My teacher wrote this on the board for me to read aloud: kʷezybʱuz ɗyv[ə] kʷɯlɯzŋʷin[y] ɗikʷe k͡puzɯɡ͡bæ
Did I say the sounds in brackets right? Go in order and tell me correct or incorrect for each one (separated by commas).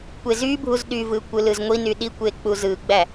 incorrect, correct